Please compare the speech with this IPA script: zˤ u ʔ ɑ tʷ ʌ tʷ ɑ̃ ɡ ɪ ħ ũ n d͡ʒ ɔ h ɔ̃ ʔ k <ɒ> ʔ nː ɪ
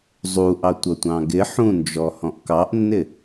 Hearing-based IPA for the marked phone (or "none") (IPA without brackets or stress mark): ɑ